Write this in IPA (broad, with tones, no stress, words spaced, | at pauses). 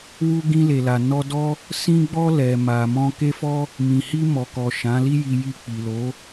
wu˧ɡĩ˧le˨la˨ nɔ˧dɔ˦ | sĩ˧ɡ͡bɔ˧ lɛ˨ ma˨mɔ̃˧ke˦fɔ˦ | mĩ˨hi˧mɔ˨kɔ˨ ʃã˨˦li˦ji˧ji˧ k͡pi˨lo˨˦